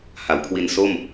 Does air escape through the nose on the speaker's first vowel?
no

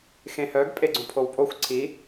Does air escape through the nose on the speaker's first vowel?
yes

